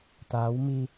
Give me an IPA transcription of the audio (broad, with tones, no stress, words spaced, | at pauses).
t̪aː˨˦wmi˧